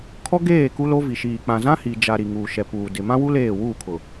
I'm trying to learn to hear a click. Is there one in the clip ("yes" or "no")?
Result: no